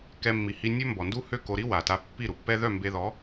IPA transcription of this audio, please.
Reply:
k ɛ˧ mː i˨ h i˧ nʲ ø˦ m b ɔ˨ n d u˦ h ø˦˨ k o˧ ɾ i˦ w a˨ t a˧ pː i˦˨ ɾ u˨ pː ɛ˦ ð œ˦˨ m b e˧ ð ɔ˨˦

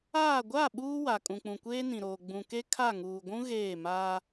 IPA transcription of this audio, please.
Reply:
aː˦˨ ɡʷ a˦˨ ɓ uː˦ w a˨ kʼ ũ˨ k͡p ũ˨ kʷ eː˦ n ĩ˨ ɾ oː˨ ɡ͡b ũ˨ k e˦ kʰ a˦˨ ŋ uː˨ ɡʷ ũ˦ ɣ eː˦˨ m aː˦

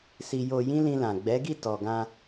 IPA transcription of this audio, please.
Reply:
s i˧ j o˧ j ĩ˦ l ĩ˧ l ã˨ ɡ͡b ɛ˨˦ ɡ i˦˨ t ɔ˨ ɡ ã˧

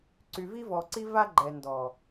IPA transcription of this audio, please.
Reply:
ǀ y˨ v i˦ v ɔ˨ ǀ i˦ v a˦ ɡ͡ǃ ɛ˨ n d ɔ˨

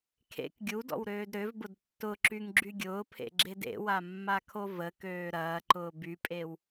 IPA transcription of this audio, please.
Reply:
kʰ ḛ k ɡʲ u d ɔ̰ w ɾ øː d ɾ ø v b ʊ d tː ʊ ǁ y ŋ ɡ͡ǁ y ɡʲ ʊː pʰ ḛ ɡ͡ǁ e d ḛ w a mː a kʰ o v ə k øː ɾ ɐː ǃ ʊː b y pʼ e w

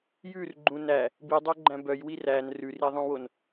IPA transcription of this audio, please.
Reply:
j ʉ r ɡ͡ǃ ũ n æ | b i dˤ o ɡ͡ǃ æ̃ b œ j w i r æ n r ʉ r i ðˤ ũ w o n

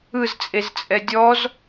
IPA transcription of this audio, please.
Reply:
ɯ z t͡sʼ e z t͡sʼ ɛ dʲ ɔ z

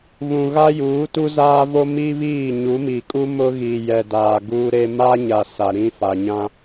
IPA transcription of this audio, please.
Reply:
β ũ˨ ɣ a˦ j uː˨˦ t u˦ z aː˦ v o˦ m i˦ β iː˦˨ ɲ u˨˦ m i˨ kʼ u˦ m ʊ˦ ɣ iː˨ j ɛ˨ d aː˨ ɡ uː˦ ɾ e˦ m a˦ ɲ a˨ s a˨ ɾ ĩ˦ f a˨ ɲ ã˦

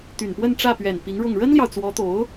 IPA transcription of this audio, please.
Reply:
t̪ y˨˩ n p w ə˥˧ n ʈ͡ʂ ä˥˩ p ɥ ɛ˨˩ n p i˧˥ ŋ ɻ ʊ˥˩ ŋ ɻ ə˥ n l j ɑ˨ ʊ̯ t͡s w ɔ˧˥ t̪ o˧˥ ʊ̯

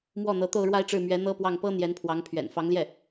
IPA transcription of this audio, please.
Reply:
m w ɔ˥˩ n̪ ɤ˧˥ t̪ o˥˧ ʊ̯ ɻ w a˥˧ ɪ̯ ʈ͡ʂ ɻ̩˥˩ m ɥ ɛ˧˥ n̪ ɤ˥ p w ɑ˥˩ ŋ p ɤ˥ n̪ j ɛ˧˥ n pʰ w ɑ˧˥ ŋ pʰ ɥ ɛ̰˨˩ n f ɑ˧˥ ŋ l j ɛ˥˩

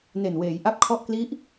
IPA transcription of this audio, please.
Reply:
n e˨˩ n w eː˩˦ j ʔ a˦˥ p̚ kʰ ɔ˦˥ ʔ k l i˦˥ ʔ

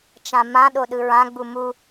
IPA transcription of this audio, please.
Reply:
t͡ʃ ã m ã ɗ o ɗ ɯ ɹ ã ɡ͡b u m u

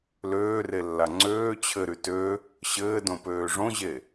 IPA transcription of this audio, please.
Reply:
l øː r e lː a ŋ͡ǀ øː t͡ɕʰ ɘ ɾ y t ø | ɕ ɘː d õ p øː ʐ õ ʑ e

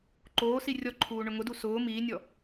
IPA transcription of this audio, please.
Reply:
ǃ oː s i rʲ ɔ ǃʰ uː ɳ ʊ ŋ ʊ d u s ʊː m iː nʲ ɔ

